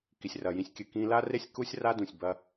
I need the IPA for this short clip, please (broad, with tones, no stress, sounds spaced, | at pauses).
k i˩ sʲ r ɐ˩ j ĩ˧ sʲ kʲ ɨ˩ k ĩ˧ l a˥ r e˥ sʲ k u˥ sʲ r a˥ d ũ˩ sʲ b ɐ˧